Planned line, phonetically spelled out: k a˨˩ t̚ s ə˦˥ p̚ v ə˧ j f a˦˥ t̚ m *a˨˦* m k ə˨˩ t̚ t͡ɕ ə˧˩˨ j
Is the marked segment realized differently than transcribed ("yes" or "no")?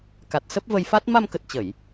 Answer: yes